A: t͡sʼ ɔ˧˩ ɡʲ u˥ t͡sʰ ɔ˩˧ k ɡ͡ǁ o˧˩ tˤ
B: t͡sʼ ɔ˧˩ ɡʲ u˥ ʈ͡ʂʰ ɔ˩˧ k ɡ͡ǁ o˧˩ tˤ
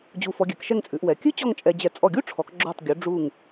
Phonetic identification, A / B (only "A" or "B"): B